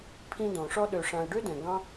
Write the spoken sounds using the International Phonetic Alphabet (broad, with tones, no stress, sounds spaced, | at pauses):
pʰ ĩ˧ d ɔ̃˨ ʂ ɔ˧ ɗ ø˨ ʂ ã˨ ɐ̯ ɖ ø˦ d ɛ̃˨ ɡ ɑ̃˦